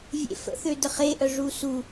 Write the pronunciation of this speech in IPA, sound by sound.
vʲ ḛ f ə̰ θ ø d ə χ e ʔ œ ʐ u s u

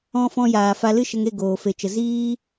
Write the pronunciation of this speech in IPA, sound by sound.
ɔ̃˦ f ɔ̃˧ j aː˨ f a˧ l ɨ˦ ʃ ə˧ ŋ e˦˨ ɡ oː˨ f e˨ t͡ʃ ə˨ z iː˦

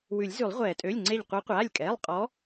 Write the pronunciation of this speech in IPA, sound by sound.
w ʉ˨˩˦ lʲ z ʉ˨˩˦ lˠ ʁʷ ɛː˨˩˦ tʼ ø˩˧˩ lʲ ŋ͡ǀ e˧˩ ʎ qʷ ɛ˨˦ qʷ aː˩˧˩ lʲ kʼ ɛː˩˧˩ lˠ qʼ ɔ˨˦

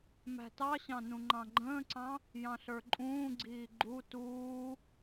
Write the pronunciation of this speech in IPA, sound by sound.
m æ̤ t ɑ ɕ ɑ̃ n ũ ŋ͡ǃ ɑ̃ ɡ͡ǃ ə̃ː ǀ ɑ̃ | j ɑ̃ ɬ ə˞ ǃʼ ũː ɡ͡ǀ iː ɡ͡ǃ u t uː

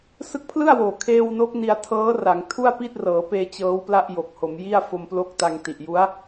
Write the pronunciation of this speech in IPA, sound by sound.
s ɯ˦˥ k̚ pʰ l ɯ˥˩ a̯ w oː˨˩ kʰ eː˧ w n o˦˥ k̚ n i˧ a̯ tʰ ɤː˦˥ r a˩˦ ŋ tʰ u˥˩ a̯ p i˥˩ t̚ r ɤː˩˦ p eː˧ t͡ɕ ɤː˦˥ w p l a˥˩ ʔ j o˨˩ k̚ h o˩˦ m j i˥˩ a̯ f o˧ m p l o˦˥ k̚ t a˧ ŋ t i˨˩ ʔ j u˦˥ a̯

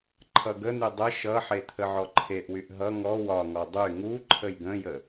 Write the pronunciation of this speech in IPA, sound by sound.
ǃʰ ʌ ɡ ə n̪ y dˤ ə ʃ ʌ ħ e t̪ʰ ə ʕ ɔ ǃʰ e ʔ w y ʔ ɦ ʌ ŋ ɔ w ɒ ŋ ɔ dˤ y ŋ u ǃʰ ə j ɡ ə̃ j ə

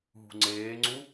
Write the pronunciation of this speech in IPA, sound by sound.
ɦ ṳ ŋ͡ǀ eː ŋ͡ǀ u

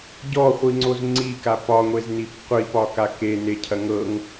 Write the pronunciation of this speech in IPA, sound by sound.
ɟ ɔ χʷ i ŋ͡ǀ o z ŋ͡ǀ i k a p ɒ ŋʷ e z n i p qʷ i p ɒ k a k e n e cʰ ɐ ŋ ɤ ŋ

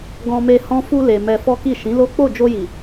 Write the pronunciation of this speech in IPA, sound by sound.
ɡ ɔ̃˧ m e˧ h ɔ̃˦ f u˧ l e˨ m ɛ˧ f ɔ˦ k i˦˨ ʃ ĩ˨˦ l o˦ k͡p o˦˨ d͡ʒ o˧ j i˨

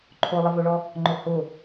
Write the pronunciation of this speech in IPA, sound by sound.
ǃʰ o lˠ ɘ v o ɭ ɔ | ŋ͡ǃ ʊ h ʊ

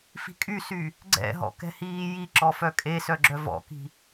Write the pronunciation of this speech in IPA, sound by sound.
f i̤ kʼ y s y | ɡ͡ǀ ɛ̰ ɦ ɔ̰ k ɛ̤ h iː j i ǁ ɔ f œ kʼ e s œ ɡ͡ǁ œ v ɔ̰ k i̤

